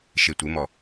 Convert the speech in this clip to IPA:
ʃ e tʷ ɪ m ɔ

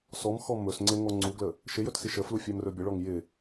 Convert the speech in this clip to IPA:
s ɔ m x ɔ m ɵ s ŋ͡ǀ ɪ ŋ ɔ ŋ͡ǀ u ɡ l ə | ʃ ɪ j ɵ t s i ʃ ə f l u fʲ æ m r ɵ bʲ ə ɭ ɔ ŋ j ɪ

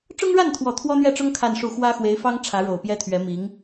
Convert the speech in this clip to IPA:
ʈ͡ʂ ʊ˥ ŋ ɻ a˥˩ n t̪ʰ w ɔ˨˩ t̪ʰ w ɔ˥ n̪ ɥ ɛ˥˩ ʈ͡ʂ ʊ˥ ŋ kʰ a˥˧ n ʂ u˥˩ x w ä˥ x w e˧˥ ɪ̯ f ɑ˥ ŋ ʈ͡ʂʰ ä˧˥ ɻ o˨˩ ʊ̯ p j ɛ˥ t̪ʰ ɥ ɛ˧˥ m i˧˥ ŋ

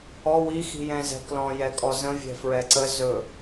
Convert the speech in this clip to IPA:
ɔ w i x i̤ j ɛ̃ z ɛ̤ k l ɔ̃ j ɛ kʼ ɔ z ə̃ vʲ ɛ̤ f ɹ ɛ ǀ ə z ɵ

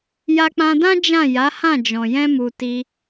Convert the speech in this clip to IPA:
j a˧ k͡p ã˧ d ã˦ d͡ʒ ã˦˨ j a˨˦ h ã˦˨ d͡ʒ ɔ̃˨ j ɛ̃˧ m u˨ t i˧

